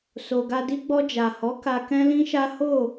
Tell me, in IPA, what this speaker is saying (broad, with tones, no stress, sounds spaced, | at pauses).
s o˨ ɡ a˧ d i˦ ɡ͡b ɔ˧ d͡ʒ a˨ h ɔ˨˦ k a˧ k ɛ̃˦ l ĩ˦ ʃ a˦ h o˦˨